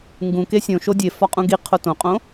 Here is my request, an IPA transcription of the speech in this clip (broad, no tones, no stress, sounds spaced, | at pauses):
ŋ ɡ ũ k e sʲ õ ʃ o dʲ e f ɒ qʼ ũ ɡ i qʰ o t õ qʼ õ